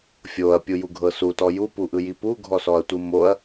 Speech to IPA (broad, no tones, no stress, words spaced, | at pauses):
fʲoɐ̯pʲujuɡʱɤ sutɔ jupuʔɯji puɡʱɔsɔɐ̯tʷɯ moɐ̯